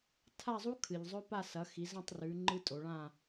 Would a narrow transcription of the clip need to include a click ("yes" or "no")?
yes